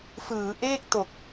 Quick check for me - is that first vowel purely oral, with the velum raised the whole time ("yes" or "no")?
yes